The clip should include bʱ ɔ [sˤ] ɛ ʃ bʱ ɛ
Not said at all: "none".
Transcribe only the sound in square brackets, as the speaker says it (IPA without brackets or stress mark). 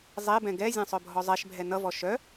zˤ